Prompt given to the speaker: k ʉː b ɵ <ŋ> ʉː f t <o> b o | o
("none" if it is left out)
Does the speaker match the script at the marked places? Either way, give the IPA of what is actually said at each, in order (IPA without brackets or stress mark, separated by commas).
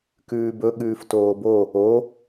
ɠ, oː